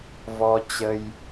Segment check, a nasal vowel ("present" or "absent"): absent